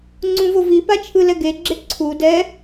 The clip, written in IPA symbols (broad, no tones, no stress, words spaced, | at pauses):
ŋ͡ǀũvovipa t͡ʃʰɯlɛɡeɡ͡ǁe ǀʰud ɛ